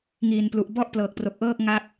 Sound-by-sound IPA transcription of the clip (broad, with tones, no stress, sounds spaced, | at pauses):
ŋ iː˨˩ n p l u˨˩ ʔ b ɔ˥˩ ʔ p l ɤː˨˩ k̚ p r o˨˩ k̚ ʔ ɤː˥˩ k̚ ŋ a˥˩ k̚